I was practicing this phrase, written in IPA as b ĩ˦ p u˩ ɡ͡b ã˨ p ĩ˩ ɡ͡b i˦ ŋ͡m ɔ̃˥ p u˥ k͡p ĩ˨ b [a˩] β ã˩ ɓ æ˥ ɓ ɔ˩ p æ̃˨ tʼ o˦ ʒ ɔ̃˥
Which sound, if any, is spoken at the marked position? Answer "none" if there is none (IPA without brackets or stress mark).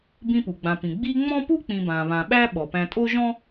ã˩